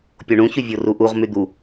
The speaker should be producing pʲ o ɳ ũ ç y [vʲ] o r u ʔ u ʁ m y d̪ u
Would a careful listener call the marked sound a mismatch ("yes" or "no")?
no